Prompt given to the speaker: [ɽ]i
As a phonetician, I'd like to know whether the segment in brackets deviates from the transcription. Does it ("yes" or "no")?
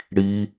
no